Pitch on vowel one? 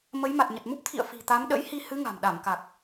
rising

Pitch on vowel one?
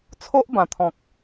high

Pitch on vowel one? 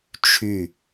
falling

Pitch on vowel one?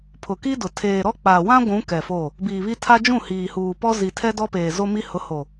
low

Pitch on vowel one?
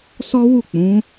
high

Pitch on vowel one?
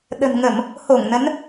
low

